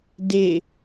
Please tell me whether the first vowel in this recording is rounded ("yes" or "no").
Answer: no